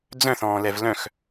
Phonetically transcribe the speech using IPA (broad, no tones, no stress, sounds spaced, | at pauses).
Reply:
d͡z œ̃ θ ɔ̃ː l ɛ v l œ̃ x